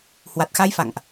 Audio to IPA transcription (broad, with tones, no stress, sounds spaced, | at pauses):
h w a˨˩ t̚ x a˧ j f a̰˧˨ ŋ ʔ